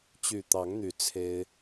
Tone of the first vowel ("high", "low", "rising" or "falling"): low